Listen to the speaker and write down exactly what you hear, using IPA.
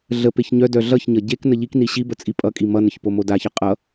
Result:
ɮ ə p e ç ɲ œ d œ ɮ ʌ ç ɲ ʌ ɟ e k n ə ʎ i k n i ɕ i b ə t͡sʼ i pʼ ʌ kʼ i m ʌ n ə ç p o m o d a ç ʌ qʼ ʌ

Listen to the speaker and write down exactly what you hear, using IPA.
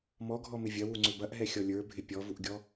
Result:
m ɔ ɡʱ ɔ m ɪ vʲ ɐ w u ŋ͡ǀ ø b ɐ ʔ ɦ ɛ xʲ ɔ lʲ ə˞ bʱ ɪ pʲ ɔ v u ʔ ɡʲ ɔ

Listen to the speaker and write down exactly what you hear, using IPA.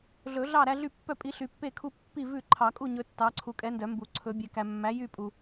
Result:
ɮ ɵ˨˩˦ ɮ ɑ˥˨ ɾ æ˦ ɮ y˥˨ pː œ˥˨ pʼ i˨˥ ɬ y˨ pː e˥˨ kʰ u˦ pː i˥˨ v ʉ˥˨ ǃʰ ɑ˨˩˦ kʼ u˥˨ ɲ ɵ˦ tː ɑ˨˥ ǀʰ u˨ kʼ ɛ˨˥ n d œ˨˩˦ m b u˨˩˦ ǀʰ ɵ˨˩˦ bʲ ɛ˨ k æ˨ mː æ˨˥ j y˥˨ pʼ u˨

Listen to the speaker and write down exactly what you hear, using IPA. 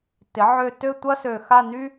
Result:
t ɪ˩˥ ʕ ø˦˨ t ø˦˨ tʷ ɐ˦ s ø˨˩ x a˦˨ n y˦

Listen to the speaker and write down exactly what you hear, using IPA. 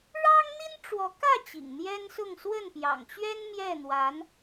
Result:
ɻ ɑ˥ ŋ n̪ i˥ n ʈ͡ʂ w ɔ˧˥ k ä˥˩ t͡ɕ ḭ˨˩ ŋ n̪ j ɛ˥ n s ʊ˥˧ ŋ s w ə˥˩ n p j ɑ̰˨˩ ŋ t͡ɕ ɥ ɛ˥ n m j ɛ˥˩ n̪ w a˧˥ n

